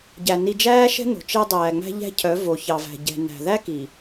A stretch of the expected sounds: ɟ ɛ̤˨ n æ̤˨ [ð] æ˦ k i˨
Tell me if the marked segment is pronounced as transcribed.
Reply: yes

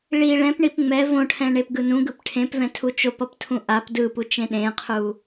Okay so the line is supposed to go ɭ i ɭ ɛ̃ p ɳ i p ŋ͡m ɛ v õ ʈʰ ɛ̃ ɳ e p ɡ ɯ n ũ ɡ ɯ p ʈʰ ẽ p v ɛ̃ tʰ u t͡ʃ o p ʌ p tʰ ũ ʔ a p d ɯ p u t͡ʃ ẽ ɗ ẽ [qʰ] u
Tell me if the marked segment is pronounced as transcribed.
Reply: yes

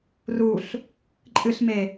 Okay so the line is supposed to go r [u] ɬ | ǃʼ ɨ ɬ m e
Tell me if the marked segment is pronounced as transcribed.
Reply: yes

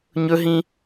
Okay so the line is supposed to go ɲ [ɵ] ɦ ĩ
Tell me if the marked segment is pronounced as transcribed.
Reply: yes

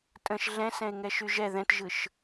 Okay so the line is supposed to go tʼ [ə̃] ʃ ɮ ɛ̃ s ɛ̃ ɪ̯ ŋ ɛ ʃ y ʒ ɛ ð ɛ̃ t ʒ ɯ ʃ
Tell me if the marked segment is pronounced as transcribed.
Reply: yes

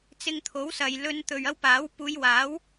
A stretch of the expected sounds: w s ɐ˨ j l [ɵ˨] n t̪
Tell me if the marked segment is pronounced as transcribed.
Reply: no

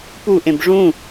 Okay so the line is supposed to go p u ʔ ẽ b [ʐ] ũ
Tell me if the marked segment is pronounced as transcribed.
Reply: yes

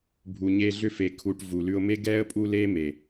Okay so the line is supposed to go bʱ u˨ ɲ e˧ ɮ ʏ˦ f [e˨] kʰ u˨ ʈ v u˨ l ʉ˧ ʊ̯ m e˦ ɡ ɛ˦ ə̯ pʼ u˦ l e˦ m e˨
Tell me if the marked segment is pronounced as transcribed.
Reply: yes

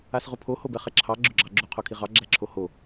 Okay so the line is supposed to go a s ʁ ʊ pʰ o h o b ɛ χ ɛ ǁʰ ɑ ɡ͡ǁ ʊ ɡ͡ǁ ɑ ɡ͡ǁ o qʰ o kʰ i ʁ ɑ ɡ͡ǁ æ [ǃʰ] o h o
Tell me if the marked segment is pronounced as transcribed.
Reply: no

